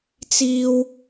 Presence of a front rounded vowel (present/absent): absent